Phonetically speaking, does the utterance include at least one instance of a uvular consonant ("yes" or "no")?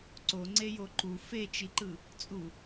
no